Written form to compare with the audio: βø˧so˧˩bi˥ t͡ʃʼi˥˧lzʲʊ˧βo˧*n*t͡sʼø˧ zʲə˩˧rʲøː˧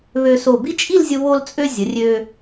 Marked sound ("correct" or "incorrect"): incorrect